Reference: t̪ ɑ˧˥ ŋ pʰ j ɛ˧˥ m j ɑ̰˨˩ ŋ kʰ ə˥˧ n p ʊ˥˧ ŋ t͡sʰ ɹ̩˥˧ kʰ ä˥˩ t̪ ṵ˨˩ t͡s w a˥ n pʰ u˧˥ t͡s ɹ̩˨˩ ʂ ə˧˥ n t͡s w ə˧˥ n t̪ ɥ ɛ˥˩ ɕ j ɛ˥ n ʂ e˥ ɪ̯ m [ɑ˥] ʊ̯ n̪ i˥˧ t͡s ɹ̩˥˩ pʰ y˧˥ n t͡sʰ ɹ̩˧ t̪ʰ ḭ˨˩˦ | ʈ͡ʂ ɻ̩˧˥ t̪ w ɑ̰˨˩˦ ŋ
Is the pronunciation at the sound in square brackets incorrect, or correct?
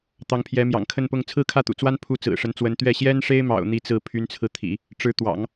incorrect